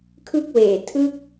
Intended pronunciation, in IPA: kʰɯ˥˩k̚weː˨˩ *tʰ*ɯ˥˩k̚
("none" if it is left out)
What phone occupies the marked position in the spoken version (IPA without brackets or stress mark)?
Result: tʰ